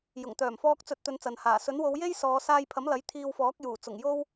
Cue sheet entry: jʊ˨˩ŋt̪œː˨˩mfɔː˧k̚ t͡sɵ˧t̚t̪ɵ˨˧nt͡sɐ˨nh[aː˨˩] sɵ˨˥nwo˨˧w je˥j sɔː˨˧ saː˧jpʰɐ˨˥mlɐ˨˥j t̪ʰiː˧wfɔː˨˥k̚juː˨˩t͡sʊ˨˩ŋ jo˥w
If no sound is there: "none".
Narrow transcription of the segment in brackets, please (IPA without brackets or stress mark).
aː˨˩